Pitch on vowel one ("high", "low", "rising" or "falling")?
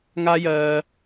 high